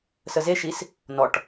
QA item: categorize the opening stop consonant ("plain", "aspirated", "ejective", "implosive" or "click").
plain